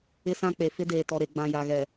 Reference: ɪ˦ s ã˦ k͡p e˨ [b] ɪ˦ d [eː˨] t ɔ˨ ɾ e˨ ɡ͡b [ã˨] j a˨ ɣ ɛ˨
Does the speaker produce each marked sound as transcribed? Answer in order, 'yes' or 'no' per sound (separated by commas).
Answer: no, yes, yes